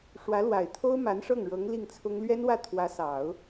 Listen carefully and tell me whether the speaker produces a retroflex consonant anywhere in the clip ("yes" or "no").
yes